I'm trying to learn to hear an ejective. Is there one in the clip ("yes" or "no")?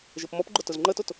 no